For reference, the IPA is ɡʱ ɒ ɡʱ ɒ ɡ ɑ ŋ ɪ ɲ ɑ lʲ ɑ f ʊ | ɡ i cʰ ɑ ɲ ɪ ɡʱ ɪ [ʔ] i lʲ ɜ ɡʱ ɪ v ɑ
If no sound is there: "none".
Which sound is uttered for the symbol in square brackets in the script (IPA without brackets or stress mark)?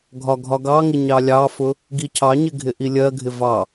ʔ